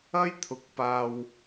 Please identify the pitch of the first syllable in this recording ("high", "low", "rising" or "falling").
high